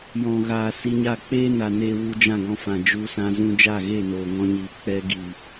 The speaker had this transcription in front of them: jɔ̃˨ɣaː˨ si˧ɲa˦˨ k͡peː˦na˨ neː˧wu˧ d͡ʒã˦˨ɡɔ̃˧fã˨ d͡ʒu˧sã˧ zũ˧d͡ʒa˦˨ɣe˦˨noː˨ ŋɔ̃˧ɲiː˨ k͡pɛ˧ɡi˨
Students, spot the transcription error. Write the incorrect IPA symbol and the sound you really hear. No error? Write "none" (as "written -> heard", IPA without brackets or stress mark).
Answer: none